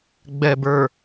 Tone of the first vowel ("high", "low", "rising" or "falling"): low